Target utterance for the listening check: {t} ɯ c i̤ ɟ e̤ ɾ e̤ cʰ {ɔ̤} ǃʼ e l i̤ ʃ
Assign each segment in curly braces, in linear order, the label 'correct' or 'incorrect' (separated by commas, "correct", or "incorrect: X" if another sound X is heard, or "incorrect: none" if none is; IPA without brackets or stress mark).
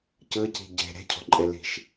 incorrect: c, correct